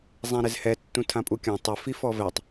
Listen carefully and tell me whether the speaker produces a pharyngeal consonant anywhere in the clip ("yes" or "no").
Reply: no